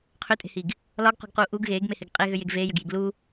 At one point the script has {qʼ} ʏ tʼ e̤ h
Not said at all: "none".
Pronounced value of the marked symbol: qʰ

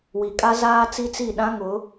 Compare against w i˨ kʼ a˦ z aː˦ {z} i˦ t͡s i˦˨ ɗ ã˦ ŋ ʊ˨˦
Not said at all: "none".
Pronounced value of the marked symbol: t͡s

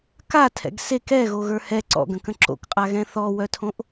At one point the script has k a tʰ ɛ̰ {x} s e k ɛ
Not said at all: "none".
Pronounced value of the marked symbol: ɡ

